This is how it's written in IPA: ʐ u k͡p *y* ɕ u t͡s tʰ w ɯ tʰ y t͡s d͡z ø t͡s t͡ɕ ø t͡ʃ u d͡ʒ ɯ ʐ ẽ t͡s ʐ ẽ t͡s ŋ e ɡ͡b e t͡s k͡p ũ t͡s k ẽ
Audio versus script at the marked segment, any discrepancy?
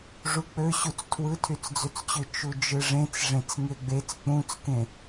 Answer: yes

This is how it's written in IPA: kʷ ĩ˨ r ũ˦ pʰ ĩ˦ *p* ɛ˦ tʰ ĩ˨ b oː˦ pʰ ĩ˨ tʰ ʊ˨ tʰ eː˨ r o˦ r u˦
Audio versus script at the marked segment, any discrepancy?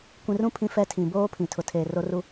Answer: yes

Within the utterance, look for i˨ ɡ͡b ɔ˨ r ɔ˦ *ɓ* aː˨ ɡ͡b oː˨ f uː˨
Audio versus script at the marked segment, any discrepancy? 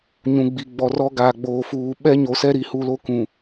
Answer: yes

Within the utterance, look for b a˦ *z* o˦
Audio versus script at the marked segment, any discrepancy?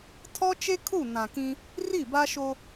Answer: yes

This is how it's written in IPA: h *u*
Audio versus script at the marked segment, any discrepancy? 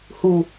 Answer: no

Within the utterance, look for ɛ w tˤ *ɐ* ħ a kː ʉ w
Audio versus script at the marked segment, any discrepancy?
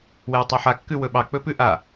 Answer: yes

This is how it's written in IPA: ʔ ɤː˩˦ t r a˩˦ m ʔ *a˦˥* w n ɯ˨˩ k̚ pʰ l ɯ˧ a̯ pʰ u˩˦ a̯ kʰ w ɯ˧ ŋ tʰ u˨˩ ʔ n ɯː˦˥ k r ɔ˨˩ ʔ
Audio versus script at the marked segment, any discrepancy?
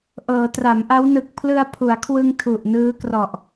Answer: no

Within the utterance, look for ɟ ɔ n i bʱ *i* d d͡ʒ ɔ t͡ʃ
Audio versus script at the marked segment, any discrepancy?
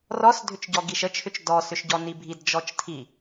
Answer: no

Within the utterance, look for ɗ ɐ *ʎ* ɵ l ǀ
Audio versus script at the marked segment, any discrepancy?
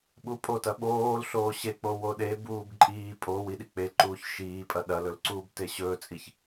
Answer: yes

